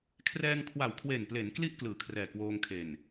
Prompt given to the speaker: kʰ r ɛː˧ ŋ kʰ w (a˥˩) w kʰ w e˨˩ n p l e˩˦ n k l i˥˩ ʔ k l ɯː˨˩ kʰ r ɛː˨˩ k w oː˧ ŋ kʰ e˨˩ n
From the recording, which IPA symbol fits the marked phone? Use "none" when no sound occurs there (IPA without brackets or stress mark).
a˨˩